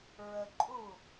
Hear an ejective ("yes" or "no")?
yes